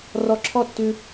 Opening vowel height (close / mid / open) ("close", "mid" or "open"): mid